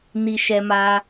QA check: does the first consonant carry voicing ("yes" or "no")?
yes